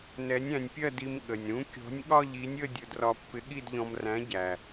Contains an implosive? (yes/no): yes